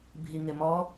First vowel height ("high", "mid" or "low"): high